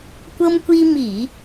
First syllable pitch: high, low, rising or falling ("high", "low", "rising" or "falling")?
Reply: high